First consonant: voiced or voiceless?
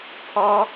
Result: voiceless